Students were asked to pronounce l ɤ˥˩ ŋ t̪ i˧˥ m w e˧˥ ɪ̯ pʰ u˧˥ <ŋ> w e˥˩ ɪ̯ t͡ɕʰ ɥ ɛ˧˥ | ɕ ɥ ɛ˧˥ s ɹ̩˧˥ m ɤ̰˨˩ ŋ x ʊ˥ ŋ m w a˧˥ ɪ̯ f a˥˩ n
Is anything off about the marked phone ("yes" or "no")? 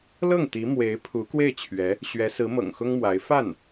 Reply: yes